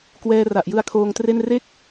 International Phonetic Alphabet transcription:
k w ɛː˧ r a˨˩ ʔ j ɯ˧ a̯ kʰ oː˧ ŋ t r e˥˩ n r e˥˩ k̚

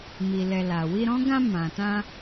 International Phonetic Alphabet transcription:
m i˨ l ɛ˨ l a˨ w i˧ ɾ ɔ̃˦ ɡ ã˧ m ã˨ t ã˧

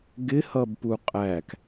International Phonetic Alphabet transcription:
ɡ ɪ h ʌ b p u qʼ æ k

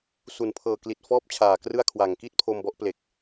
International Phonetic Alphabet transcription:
s u˨˩ n pʰ ɤː˨˩ k l i˨˩ t̚ f ɔː˦˥ p̚ t͡ɕʰ aː˨˩ k r ɯ˥˩ a̯ kʰ w a˨˩ ŋ k i˥˩ t̚ pʰ o˧ m b ɔ˦˥ ʔ p l e˨˩ k̚

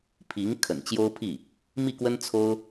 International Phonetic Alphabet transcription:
pʰ i˧˥ ŋ kʰ ə̰˨˩ n t͡ɕ j o˥ ʊ̯ pʰ i˥˩ | m i˥˩ k w ə˥ n t͡sʰ o˥ ʊ̯

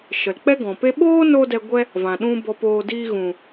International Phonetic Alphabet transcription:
ʃ ə˨ l k͡p ɛ˦ ɡ ɔ̃˨ p e˦ ɓ oː˦ n o˧ d ɛ˧ ɡʷ ɛ˦ | v ã˨ ɗ ũ˦ b ɔ˧ p oː˧ d iː˦ ɣ ũ˨

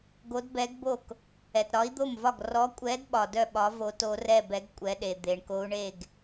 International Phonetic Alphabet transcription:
ɡ o˨˥ d b ɛ˨˥ ɡ b o˥˩ k | ɛ˩ t ɾ ɒ˨˥ i̯ d̪ o˥˩ m v ɒ˥˩ ɡ r ɔ˨˥ kʷʼ ɛ˨˥ d ɓ ɒ˩ d œ˥˩ ɓ ɒ˨˥ v o˨˥ t o˨˥ r ɛ˥˩ b ɛ˨˥ ɡ kʷʼ ɛ˨˥ ɗ e˩ d̪ e˩ ɳ k o˨˥ u̯ ɳ e˥˩ ɡ

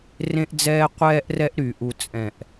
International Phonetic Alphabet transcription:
r ẽ˦ ʔ d͡z ɛː˦ qʷ ɛː˦ ʔ r ɛ˦ ʔ ɾ y˨ ʔ u˦ t͡sʼ ɛ̃˦˨ ʔ

